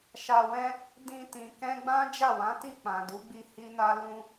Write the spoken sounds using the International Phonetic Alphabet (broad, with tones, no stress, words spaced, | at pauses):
ʃa˧wɛ̃˦ | dĩ˧tĩ˨ kɛ̃˧ɡ͡bã˦ d͡ʒa˦˨wã˨˦ti˦˨ k͡pã˨du˨˦ɡ͡bi˧ hi˦na˦ lũ˧